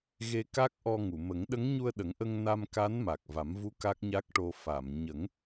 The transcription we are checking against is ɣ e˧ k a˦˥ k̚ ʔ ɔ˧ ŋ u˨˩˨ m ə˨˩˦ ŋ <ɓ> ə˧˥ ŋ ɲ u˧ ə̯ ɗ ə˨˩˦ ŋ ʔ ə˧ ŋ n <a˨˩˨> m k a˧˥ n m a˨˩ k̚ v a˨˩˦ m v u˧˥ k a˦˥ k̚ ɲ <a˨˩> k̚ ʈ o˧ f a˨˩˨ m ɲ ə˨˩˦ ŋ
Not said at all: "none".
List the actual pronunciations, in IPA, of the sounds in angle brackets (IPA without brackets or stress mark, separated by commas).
ɗ, a˧, a˦˥